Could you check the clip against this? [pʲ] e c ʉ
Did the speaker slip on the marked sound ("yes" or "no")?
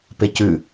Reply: yes